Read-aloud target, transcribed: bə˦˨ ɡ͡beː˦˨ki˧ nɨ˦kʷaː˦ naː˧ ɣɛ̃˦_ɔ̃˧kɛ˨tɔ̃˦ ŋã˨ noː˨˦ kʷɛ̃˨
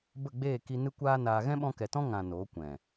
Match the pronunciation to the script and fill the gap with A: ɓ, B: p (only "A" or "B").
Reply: A